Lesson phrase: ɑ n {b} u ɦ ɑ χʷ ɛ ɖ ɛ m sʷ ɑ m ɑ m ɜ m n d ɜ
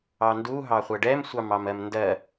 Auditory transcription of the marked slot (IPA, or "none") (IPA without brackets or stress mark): d